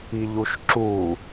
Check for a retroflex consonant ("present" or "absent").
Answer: absent